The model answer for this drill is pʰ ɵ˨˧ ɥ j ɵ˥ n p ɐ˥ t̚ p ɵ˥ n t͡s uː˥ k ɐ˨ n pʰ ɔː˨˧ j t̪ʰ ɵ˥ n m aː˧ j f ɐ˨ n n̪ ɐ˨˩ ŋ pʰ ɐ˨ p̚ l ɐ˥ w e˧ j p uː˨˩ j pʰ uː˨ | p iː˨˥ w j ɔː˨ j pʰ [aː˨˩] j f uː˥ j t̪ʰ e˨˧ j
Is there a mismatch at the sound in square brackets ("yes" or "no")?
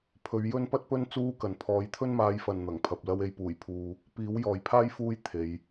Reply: yes